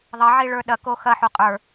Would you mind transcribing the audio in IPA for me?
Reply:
ðˤ ɐ ʕ i ɭ ə˞ ɗ ɐ k o x ɐ ħ u qʼ ə˞

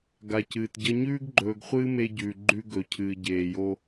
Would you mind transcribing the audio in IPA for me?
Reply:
ɡ a˨ c ɨː˨ t ɟ ɐ˦ ɲ ʉː˦ ɡ ɡ͡ǃ ɵː˨ ɡ χʷ ɨː˦ m e˦ ɟ ʉː˨ ɡ͡ǃ ʉ˦ ɡ ɵ˨ cʰ ɨː˨ ɟ eː˨ j o˦

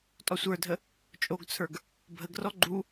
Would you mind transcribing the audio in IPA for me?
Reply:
tʼ ɔ sʷ ə˞ dʱ ə | t͡ʃʼ o ɡ t͡sʰ ə˞ ɡ | bʱ ə ɡ r ɔ ɡ͡ǃ u

